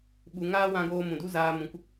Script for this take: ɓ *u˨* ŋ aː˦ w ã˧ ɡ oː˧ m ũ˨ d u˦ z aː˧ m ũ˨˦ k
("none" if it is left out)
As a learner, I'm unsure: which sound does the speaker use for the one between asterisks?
u˧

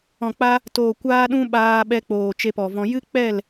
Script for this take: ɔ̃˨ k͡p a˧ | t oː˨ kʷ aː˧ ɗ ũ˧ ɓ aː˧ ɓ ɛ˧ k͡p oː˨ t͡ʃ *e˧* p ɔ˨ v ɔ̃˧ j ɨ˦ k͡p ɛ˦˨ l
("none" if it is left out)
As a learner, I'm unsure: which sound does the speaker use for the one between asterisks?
e˧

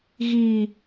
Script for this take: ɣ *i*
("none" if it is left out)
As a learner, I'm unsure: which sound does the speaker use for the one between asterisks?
i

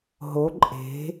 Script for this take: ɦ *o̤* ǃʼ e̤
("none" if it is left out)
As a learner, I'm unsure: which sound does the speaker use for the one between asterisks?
o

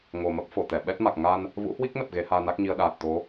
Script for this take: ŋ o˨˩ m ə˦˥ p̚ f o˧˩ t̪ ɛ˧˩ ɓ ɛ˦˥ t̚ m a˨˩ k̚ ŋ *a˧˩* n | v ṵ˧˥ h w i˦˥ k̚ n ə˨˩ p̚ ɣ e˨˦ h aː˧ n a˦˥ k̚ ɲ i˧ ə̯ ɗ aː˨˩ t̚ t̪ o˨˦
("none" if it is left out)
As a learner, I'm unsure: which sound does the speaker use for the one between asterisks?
a˧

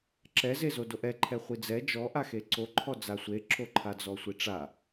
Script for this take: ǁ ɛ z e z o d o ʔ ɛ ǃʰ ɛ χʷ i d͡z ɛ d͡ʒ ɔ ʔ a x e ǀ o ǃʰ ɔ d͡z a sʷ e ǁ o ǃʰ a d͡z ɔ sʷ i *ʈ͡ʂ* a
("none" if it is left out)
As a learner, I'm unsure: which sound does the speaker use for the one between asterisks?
ʈ͡ʂ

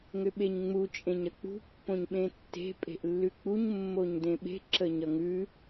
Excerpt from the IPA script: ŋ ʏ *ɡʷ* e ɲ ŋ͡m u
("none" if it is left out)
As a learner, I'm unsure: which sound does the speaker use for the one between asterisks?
ɓ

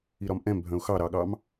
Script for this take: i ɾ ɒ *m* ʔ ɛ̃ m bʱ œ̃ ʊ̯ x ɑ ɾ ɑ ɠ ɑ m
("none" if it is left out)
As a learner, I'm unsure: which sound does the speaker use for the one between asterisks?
m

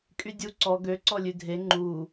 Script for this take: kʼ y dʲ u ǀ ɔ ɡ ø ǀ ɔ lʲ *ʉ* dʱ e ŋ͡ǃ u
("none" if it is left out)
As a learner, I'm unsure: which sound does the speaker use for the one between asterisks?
ʉ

